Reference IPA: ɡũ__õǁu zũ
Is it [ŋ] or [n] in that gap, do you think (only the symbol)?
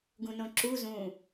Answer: n